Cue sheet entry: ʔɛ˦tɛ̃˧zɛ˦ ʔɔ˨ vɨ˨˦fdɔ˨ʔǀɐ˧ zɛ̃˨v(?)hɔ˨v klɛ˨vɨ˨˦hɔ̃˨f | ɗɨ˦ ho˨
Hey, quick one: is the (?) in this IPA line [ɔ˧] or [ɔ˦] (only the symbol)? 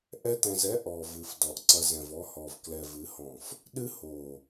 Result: ɔ˧